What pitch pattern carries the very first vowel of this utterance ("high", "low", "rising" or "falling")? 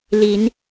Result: rising